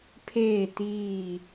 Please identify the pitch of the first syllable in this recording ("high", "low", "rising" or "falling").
falling